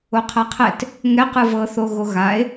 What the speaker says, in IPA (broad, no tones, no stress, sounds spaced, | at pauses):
o qʰ ɐ qʰ ɛ t | ŋ ɛ q ɯ v ɤ θ o ɣ o ɣ a e̯